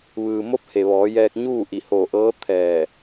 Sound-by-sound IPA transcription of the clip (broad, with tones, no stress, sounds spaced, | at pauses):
ʋ ɯː˩ m o˧˥ p̚ h e˩ ʋ ɔː˩˧ j ɛː˧ k̚ ɲ uː˥˨ ʔ i˧˩ h oː˧˩ ʔ ɤː˧˥ t̪ʰ ɛː˧˩